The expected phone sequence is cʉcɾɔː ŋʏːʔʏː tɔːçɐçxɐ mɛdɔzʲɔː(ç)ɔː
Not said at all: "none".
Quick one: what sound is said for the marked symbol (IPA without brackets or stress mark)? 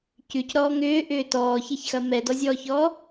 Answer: ç